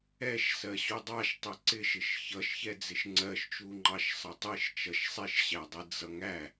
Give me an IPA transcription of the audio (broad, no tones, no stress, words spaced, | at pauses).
ɛʃ sɜɕudˤɑʃ tˤɪǀɪʃɪʃ çʌʃçɛ d͡zɪʃŋ͡ǀɜʃt͡ʃu ŋ͡ǃɑʃsˤʌtˤiʃ t͡ʃʌʃsˤiʃɕædˤi d͡zʌŋæ